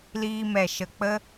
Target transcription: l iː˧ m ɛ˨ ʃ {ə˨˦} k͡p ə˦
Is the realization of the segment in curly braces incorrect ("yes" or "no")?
yes